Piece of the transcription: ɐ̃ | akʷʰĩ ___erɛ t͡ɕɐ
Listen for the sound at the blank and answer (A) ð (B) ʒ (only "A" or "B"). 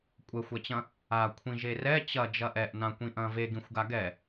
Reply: B